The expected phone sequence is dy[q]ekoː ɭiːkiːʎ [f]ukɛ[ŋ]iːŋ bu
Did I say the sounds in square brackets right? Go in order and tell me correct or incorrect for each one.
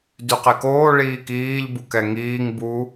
correct, incorrect, correct

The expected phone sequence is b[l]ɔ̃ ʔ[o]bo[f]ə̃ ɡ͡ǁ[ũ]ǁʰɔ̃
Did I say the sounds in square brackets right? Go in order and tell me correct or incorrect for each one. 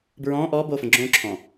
incorrect, incorrect, correct, incorrect

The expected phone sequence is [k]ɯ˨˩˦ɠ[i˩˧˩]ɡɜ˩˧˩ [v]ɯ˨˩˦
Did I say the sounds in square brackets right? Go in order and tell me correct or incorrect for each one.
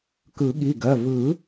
correct, correct, correct

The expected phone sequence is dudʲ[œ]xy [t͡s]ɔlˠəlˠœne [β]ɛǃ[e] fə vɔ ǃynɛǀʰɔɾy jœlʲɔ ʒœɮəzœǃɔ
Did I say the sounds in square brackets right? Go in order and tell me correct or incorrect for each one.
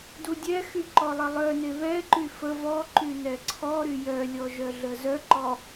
incorrect, incorrect, correct, incorrect

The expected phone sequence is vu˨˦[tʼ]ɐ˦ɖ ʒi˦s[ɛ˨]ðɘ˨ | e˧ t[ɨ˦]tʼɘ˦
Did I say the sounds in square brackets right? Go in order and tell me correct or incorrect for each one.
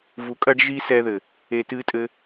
incorrect, incorrect, correct

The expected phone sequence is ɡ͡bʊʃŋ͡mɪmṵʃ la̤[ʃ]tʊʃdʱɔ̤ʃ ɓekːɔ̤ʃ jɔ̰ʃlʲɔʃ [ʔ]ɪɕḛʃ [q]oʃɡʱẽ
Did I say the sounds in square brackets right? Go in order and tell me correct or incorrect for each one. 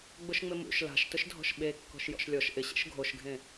correct, correct, incorrect

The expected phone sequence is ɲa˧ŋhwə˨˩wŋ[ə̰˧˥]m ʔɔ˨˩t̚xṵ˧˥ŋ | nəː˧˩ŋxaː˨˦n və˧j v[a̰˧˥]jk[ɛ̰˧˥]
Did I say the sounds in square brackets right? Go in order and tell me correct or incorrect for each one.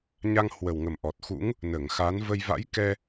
incorrect, correct, incorrect

